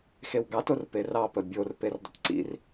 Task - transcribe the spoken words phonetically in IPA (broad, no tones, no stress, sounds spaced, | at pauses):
x e w ɡ ɑ t o r p e r ɑ p ə bʲ o r p e r dˤ ə̰ t ǀ ḭ r